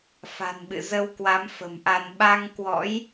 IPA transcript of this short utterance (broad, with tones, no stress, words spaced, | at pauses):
fa̤˨˩nɓɨ̰˧˨zə˧wkwa˨˦m fə̤˨˩mʔa˧n ɓa˧ŋkwɔ̰˧˥j